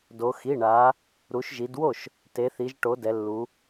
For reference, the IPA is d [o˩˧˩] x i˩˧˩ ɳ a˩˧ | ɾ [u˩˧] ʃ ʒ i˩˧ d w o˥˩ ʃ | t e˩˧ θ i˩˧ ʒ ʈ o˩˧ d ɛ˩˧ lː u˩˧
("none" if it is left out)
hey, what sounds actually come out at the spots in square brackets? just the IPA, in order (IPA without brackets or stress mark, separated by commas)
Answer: o˩˧, u˩˧